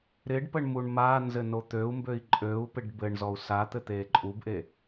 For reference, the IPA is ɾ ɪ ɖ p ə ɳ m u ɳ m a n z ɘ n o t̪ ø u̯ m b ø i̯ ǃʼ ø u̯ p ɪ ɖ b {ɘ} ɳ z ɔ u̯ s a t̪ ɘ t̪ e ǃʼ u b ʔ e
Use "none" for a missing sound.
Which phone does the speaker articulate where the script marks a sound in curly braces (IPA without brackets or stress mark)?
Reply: ɘ